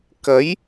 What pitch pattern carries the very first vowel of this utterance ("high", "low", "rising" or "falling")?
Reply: rising